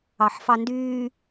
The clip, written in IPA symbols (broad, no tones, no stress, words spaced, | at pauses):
ɑħfɑndyː